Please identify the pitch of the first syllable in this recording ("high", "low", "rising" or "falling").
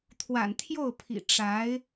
low